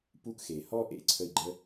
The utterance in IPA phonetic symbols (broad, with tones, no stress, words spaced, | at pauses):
pu˦kxe˨hɔ˥ʔḛ˥ ǀʰə˦i̯ ɡ͡ǃə˥